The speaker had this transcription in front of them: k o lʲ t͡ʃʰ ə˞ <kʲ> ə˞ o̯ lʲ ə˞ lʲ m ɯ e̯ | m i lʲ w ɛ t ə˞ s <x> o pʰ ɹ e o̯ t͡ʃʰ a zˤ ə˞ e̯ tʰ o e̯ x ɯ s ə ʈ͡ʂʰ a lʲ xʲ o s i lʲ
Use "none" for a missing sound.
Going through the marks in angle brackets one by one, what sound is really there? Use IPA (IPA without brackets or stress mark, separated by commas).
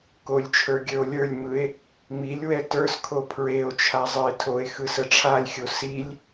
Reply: ɡʲ, kʰ